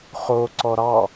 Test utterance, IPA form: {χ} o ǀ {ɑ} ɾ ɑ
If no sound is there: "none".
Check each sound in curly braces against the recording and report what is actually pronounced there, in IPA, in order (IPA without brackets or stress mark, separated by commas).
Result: χ, ɔ